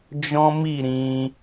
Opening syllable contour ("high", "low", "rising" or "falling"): high